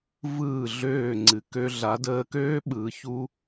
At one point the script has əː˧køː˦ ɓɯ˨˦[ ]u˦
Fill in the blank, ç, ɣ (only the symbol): ç